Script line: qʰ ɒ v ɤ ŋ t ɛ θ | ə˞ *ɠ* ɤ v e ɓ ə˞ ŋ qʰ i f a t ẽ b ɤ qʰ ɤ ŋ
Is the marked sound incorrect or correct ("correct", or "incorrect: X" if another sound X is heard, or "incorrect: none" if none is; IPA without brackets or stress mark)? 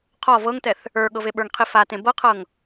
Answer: correct